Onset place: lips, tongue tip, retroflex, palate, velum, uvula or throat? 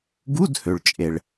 velum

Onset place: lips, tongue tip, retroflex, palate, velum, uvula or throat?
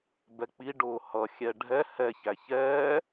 lips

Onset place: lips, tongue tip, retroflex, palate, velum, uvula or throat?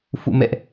lips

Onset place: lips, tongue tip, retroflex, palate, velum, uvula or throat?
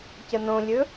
palate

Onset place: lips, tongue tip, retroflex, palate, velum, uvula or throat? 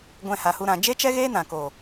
velum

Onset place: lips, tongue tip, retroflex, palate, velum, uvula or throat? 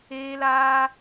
tongue tip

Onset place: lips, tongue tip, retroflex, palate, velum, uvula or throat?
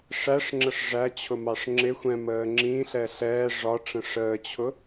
retroflex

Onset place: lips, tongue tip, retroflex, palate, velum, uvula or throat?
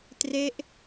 tongue tip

